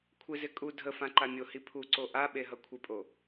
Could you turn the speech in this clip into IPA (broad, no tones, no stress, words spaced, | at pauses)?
kʷʰɪzɪ kʼu dʱəfã ǃamʲohi pʰu ǀoʔaɓe ɦʌkʷʰɪpʼo